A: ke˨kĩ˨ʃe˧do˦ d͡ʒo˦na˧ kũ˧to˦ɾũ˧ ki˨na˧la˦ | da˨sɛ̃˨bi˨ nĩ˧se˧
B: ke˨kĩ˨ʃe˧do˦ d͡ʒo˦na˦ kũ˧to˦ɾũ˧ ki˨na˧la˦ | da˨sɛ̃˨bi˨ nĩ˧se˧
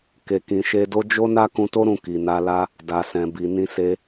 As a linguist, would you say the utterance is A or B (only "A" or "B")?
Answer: B